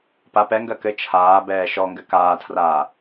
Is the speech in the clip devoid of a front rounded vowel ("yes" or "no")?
yes